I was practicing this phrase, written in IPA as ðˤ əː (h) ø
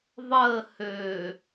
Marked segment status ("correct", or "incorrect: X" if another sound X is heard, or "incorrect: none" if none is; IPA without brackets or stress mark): correct